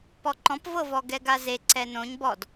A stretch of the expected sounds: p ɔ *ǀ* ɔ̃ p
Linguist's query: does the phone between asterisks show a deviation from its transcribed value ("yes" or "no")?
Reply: yes